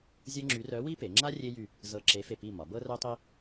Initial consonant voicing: voiced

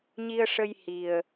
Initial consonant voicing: voiced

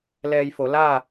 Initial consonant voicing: voiced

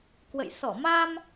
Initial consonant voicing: voiceless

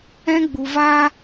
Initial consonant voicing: voiced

